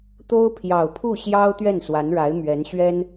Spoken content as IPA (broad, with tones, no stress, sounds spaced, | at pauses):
t̪ o˥ ʊ̯ pʰ j ɑ˨˩ ʊ̯ pʰ u˥˩ ɕ j ɑ˥ ʊ̯ t̪ ɥ ɛ˥˩ n s w a˧˥ n ɻ a˧˥ ɪ̯ m ɥ ɛ˧˥ n ɕ ɥ ɛ˥ n